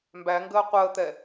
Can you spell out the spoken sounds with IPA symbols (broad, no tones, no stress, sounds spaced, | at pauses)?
m b æ ŋ ɡ əː qʷ əː t̪ ɛ